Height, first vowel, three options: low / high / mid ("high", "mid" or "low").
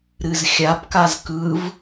high